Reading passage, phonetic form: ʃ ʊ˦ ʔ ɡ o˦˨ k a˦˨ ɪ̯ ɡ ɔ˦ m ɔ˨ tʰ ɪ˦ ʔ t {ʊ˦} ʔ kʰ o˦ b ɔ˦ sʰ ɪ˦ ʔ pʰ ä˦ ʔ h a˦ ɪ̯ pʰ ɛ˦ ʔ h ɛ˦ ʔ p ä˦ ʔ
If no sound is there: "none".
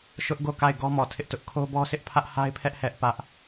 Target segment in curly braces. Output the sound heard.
ʊ˦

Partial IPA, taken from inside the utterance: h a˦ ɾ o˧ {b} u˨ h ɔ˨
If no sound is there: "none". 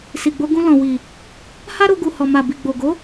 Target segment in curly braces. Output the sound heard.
ɡ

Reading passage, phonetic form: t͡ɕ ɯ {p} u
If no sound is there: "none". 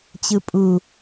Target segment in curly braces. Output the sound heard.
pʼ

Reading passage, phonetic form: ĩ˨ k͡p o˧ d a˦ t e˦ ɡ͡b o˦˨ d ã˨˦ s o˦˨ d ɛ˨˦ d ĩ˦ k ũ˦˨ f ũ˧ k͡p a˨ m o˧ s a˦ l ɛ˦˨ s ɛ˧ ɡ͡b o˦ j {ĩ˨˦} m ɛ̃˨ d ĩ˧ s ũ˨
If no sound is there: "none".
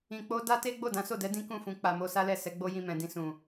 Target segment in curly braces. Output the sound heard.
ĩ˧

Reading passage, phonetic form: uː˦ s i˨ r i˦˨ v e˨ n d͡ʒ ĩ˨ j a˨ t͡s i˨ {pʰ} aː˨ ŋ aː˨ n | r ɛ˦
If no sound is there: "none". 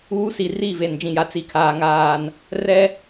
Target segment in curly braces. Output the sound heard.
kʰ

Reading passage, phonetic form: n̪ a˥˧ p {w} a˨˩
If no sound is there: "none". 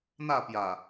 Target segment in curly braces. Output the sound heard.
j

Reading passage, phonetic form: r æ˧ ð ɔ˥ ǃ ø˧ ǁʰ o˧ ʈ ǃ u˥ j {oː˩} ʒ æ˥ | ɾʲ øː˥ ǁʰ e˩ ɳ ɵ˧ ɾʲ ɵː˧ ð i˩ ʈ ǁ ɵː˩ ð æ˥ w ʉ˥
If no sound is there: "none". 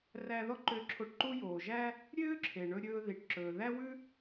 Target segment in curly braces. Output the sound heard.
oː˩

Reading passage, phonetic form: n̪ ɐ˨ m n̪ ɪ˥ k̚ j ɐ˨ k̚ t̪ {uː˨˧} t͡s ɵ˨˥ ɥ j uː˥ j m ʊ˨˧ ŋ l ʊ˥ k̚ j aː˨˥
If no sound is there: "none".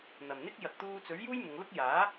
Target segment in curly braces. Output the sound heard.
uː˧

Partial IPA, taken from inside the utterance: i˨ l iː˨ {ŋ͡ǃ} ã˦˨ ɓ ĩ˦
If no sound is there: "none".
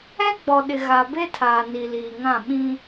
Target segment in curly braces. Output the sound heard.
ŋ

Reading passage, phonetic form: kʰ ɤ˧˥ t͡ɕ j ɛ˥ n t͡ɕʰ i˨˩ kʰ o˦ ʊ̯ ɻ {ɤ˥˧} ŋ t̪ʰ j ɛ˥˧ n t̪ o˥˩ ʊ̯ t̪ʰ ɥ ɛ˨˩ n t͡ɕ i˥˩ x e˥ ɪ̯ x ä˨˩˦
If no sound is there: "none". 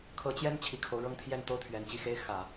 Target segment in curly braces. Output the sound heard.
ɤ˥˧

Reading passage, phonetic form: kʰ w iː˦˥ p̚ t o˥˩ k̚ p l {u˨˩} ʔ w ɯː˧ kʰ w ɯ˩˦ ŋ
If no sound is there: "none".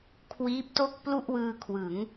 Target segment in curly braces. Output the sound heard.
u˥˩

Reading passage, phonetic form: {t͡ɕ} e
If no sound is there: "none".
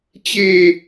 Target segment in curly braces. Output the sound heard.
t͡ɕ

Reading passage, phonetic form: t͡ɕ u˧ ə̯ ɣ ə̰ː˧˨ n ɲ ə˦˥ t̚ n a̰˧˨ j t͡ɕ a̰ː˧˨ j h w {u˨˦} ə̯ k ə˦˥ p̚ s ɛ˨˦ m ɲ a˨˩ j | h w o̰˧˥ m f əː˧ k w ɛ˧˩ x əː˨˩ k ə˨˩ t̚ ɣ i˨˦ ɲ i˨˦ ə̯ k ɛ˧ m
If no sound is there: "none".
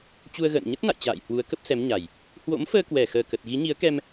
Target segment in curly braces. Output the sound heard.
u˨˦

